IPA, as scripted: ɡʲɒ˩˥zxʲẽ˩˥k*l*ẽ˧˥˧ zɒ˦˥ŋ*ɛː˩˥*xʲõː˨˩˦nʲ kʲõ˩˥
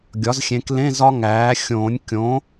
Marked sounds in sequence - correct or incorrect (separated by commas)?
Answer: correct, incorrect